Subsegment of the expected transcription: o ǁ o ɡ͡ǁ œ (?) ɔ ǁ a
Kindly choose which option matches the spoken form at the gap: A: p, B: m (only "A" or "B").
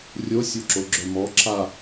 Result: B